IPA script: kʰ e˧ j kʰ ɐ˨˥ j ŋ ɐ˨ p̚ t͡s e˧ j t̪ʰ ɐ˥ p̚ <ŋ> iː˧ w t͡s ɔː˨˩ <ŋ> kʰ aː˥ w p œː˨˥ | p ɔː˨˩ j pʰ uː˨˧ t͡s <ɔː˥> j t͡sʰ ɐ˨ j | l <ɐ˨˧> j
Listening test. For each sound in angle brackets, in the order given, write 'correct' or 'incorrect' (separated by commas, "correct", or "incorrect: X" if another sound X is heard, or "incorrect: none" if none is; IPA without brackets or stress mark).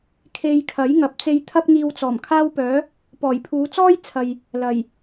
correct, incorrect: m, correct, incorrect: ɐ˨˩